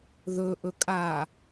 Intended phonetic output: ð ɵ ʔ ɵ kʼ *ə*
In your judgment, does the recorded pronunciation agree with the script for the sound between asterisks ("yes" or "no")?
no